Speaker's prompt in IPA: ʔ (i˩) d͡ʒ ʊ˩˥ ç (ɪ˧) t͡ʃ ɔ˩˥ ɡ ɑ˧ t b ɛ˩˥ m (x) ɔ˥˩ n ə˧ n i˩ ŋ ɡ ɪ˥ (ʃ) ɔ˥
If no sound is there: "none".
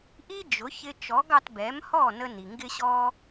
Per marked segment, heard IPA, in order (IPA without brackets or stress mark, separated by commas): i˥, ɪ˧, h, ɕ